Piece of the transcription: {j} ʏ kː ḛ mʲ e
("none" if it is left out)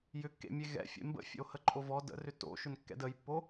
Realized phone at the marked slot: j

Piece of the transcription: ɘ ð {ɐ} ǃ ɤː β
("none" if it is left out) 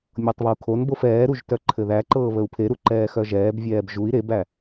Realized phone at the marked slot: æ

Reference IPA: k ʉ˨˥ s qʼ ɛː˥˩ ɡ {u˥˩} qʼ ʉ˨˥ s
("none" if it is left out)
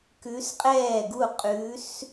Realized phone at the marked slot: u˥˩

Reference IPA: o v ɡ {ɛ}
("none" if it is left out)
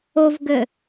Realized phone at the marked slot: ɘ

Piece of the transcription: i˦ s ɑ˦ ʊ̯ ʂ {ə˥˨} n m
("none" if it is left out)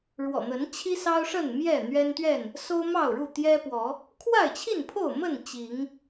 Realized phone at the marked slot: ə˥˨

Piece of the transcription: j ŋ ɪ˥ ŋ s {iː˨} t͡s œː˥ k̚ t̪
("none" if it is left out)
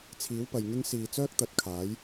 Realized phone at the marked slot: iː˨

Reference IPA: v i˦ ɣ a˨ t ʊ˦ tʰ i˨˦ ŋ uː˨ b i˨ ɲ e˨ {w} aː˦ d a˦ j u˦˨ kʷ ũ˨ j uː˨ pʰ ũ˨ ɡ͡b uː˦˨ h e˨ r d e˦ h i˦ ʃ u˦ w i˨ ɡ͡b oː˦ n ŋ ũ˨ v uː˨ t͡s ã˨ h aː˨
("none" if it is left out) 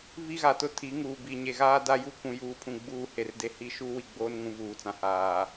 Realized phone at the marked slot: ɣ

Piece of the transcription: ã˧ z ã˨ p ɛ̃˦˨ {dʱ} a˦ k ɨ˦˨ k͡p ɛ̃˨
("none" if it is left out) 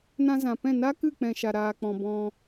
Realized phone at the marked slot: n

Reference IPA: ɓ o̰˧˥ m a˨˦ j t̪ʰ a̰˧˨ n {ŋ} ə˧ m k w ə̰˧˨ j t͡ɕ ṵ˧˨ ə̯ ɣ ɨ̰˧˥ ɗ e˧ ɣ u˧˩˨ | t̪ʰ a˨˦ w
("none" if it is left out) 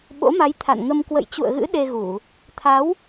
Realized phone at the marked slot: ŋ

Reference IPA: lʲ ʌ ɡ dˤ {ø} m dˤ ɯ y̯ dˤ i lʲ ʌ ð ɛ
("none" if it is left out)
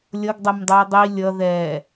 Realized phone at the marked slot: ɛ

